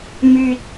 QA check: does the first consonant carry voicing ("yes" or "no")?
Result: yes